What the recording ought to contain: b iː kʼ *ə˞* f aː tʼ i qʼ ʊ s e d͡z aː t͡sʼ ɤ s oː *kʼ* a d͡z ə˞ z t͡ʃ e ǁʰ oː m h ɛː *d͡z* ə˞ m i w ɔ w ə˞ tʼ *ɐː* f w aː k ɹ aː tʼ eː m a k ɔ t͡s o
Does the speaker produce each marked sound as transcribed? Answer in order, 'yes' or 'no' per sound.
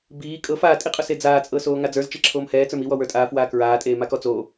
no, no, no, no

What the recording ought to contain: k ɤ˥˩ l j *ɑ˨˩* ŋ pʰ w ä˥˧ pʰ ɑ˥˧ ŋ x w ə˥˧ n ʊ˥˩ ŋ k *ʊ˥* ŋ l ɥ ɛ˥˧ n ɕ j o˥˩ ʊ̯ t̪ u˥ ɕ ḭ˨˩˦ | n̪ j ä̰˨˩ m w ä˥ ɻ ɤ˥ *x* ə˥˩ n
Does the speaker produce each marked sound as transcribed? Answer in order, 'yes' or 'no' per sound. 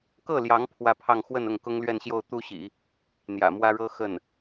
no, yes, yes

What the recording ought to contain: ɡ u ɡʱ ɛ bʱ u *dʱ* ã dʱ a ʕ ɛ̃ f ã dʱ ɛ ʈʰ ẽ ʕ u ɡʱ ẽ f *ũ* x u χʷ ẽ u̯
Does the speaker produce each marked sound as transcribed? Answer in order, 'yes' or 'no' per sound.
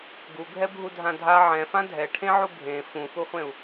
yes, yes

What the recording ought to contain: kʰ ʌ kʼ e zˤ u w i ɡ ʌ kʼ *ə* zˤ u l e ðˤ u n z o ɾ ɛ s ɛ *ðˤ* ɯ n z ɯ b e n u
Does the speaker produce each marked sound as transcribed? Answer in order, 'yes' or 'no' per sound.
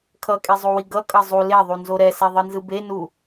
no, yes

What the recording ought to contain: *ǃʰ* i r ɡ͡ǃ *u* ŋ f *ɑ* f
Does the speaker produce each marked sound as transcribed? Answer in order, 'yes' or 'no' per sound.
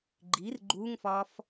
no, yes, no

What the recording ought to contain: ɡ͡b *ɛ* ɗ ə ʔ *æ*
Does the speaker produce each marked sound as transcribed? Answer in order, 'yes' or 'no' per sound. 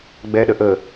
yes, no

